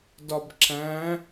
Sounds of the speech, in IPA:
dɒbǁæ̃

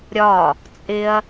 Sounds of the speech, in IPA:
ɾʲɒ | t͡sʼɪɐ̯

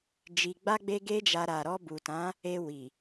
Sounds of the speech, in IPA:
d͡ʒi˧ɡ͡ba˦ ɡ͡be˦ɡe˦d͡ʒa˧ ɾa˨ɾɔ˧ bu˨tã˨˦ | e˧ wi˨

